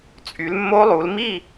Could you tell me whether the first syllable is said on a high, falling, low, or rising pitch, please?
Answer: rising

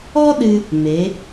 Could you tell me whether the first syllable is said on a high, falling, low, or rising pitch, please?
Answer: high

